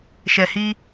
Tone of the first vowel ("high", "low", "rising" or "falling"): low